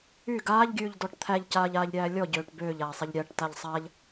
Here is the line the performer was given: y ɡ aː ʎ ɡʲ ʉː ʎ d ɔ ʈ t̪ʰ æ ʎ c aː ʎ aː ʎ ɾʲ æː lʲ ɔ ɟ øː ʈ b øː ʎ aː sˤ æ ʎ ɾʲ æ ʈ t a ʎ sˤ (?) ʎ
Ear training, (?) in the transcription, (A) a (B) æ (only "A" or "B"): A